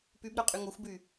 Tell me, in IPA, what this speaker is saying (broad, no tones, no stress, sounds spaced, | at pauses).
p y b ɾ œ qʼ y ŋ o xʷ b y